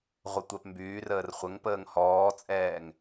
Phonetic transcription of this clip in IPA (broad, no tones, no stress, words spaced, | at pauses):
ʁʷətʷɛpmbyːrəːr χʷəŋ pəːŋhɔːt͡sʼɛːŋ